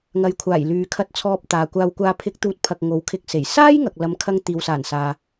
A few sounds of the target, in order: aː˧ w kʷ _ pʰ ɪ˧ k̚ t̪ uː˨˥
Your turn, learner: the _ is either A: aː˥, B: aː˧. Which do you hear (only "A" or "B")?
B